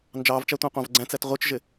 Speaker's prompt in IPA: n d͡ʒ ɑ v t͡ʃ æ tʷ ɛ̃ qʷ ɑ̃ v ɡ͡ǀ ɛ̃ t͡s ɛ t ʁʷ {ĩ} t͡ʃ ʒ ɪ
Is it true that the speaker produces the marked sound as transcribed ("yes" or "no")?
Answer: no